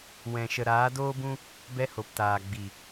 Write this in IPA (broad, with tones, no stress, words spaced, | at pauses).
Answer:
wɛ̃˨ʃə˨ ɾaː˨˦doː˦bũ˦ | bɛ˧ho˨ptaː˨ ɡ͡bi˨